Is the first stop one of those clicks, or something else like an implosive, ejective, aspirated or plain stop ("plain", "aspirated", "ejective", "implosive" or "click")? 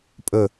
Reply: ejective